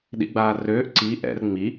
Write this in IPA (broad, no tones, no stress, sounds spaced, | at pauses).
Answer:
ɗ ḭ ɡ͡b aː r øː ʔ ǀ i ʔ ɛ̰ r ŋ͡m i